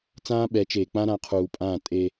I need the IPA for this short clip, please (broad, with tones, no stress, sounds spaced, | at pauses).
t͡s ãː˦ ɓ ɛ˨˦ t͡ʃ eː˨ k͡p ã˦ ɾ ã˨˦ qʰ uː˨ pʼ ãː˦˨ tʼ e˦